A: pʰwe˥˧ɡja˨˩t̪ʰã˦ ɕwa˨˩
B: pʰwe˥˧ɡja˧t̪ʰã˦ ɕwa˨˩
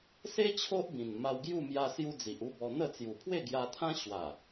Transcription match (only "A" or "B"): B